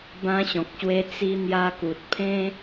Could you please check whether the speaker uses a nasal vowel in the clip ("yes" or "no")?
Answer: yes